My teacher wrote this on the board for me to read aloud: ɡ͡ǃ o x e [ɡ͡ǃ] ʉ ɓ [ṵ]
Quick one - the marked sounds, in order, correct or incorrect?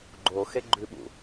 correct, correct

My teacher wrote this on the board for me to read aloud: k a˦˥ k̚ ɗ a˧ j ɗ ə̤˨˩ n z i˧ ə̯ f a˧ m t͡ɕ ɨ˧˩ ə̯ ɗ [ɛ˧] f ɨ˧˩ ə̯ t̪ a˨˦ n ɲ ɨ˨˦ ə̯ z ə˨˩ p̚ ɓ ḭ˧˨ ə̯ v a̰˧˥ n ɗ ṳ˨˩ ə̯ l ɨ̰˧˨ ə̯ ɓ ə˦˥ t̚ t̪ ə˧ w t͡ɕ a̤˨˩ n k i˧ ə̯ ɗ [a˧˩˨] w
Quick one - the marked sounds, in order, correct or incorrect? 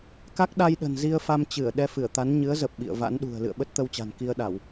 correct, correct

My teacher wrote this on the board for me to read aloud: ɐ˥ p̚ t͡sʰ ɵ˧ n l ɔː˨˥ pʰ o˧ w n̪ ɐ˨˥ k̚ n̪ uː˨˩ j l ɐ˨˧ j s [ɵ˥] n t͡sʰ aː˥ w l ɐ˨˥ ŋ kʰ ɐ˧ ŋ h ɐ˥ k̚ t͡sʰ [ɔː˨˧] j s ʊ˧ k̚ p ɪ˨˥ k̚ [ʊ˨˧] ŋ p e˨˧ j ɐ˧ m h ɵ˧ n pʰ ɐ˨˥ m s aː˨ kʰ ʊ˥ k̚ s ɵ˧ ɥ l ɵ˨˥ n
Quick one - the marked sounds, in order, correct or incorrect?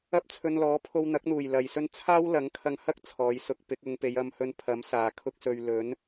correct, correct, correct

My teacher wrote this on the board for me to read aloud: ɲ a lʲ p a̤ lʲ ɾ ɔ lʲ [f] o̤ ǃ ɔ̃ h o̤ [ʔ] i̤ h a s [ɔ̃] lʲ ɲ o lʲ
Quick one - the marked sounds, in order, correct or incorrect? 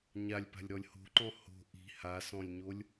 incorrect, correct, correct

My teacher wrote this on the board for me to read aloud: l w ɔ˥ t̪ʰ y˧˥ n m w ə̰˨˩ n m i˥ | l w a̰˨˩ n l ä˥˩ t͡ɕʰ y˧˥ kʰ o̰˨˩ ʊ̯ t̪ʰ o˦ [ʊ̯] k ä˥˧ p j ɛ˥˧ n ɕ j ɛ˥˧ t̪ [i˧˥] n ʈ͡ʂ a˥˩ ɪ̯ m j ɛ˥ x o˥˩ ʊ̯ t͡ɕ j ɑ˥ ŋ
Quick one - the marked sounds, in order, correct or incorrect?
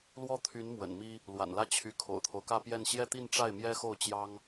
correct, incorrect

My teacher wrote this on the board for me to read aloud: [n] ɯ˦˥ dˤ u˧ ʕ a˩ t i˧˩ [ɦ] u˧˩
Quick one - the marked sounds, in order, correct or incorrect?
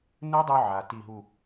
correct, correct

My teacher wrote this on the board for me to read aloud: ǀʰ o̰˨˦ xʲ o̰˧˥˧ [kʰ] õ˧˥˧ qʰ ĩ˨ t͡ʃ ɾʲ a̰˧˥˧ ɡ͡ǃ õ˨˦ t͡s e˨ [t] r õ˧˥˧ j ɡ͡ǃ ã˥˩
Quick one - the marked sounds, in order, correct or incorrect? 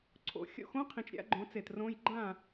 incorrect, correct

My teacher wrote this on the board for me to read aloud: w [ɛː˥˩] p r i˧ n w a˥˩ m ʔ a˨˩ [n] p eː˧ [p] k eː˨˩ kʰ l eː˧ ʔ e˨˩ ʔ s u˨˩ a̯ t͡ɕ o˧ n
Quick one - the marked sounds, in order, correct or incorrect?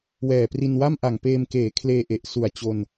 incorrect, incorrect, incorrect

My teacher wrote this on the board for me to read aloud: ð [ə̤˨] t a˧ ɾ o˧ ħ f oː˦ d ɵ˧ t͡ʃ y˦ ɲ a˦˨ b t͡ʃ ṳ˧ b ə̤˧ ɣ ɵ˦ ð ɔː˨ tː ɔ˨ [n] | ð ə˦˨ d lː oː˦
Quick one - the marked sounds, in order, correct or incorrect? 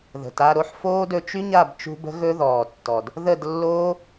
correct, incorrect

